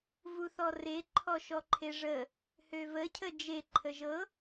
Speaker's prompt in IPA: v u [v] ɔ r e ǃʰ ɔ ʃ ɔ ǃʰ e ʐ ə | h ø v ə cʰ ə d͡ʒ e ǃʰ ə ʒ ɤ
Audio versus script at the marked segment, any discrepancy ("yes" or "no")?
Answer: yes